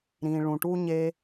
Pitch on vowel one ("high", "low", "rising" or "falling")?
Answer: low